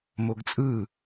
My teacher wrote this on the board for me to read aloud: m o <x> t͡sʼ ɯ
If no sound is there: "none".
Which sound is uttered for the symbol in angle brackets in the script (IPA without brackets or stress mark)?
ɡ